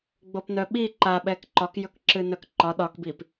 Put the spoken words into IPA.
ɡ͡bopnœɓi ǃaɓɛk ǃɒk jɵkǁɨnœkǃɒ ɗɒkbip

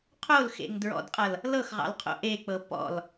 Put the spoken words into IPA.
qʰolxḛŋ dɹɔ̰dqʼʌl | lɤxʁɑ̰lqʰo̰ ʔek͡pɤ pɔ̰l

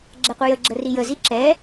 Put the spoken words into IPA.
ɡ͡ǁɛqʷəjəɡ͡ǁə rijəzi ǁɛ

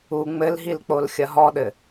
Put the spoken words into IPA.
u ŋ͡mɘlɦilk͡polxʲɐ ɦɔɗɘ

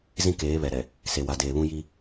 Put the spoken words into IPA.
zĩ˦keː˨˦βɛ˨ɾɛ˨ | se˨wa˨deː˨βũ˦ ji˦

